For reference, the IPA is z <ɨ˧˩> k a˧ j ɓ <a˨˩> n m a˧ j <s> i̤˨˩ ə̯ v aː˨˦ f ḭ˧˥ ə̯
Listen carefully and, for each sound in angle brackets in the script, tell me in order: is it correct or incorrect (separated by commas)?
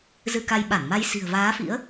incorrect, incorrect, correct